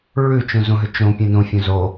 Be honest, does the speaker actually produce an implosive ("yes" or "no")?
no